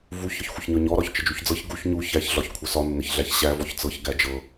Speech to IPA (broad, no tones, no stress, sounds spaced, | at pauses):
v u ç ɒ ç xʷ ə ç ɲ ɒ ɲ ɔ ɾ ɒ ç t͡ʃ ə d͡ʒ u ç d͡z ɤ ç ɡ u ç ɲ u ç æ ç ɮ ɒ ç kʷʰ ə s ɒ nː ə ç ɮ æ ç ɕ æ v ɔ ç t͡s ɤ ç ɡ æ d͡ʒ ɤ